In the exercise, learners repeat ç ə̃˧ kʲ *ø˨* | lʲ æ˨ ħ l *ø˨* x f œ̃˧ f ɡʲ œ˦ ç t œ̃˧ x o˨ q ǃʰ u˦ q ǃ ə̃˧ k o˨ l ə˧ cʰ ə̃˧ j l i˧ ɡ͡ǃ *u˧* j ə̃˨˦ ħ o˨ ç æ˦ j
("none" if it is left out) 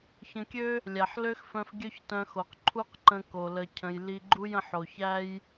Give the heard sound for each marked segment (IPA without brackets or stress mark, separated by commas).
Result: ø˦, ø˦, u˦